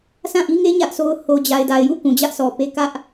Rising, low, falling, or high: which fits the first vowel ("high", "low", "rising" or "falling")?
falling